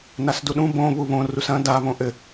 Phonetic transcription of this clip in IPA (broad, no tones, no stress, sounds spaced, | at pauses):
n a s d u ɗ ũ b õ β u β õ r u s ɐ̃ d a β õ ʔ ɘ